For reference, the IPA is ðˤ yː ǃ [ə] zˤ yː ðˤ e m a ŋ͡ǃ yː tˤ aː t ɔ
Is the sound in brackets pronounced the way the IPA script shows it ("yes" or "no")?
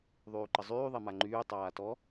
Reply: yes